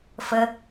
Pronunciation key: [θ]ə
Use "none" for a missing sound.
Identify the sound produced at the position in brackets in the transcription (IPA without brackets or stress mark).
f